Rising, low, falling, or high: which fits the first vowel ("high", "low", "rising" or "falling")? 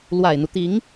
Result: low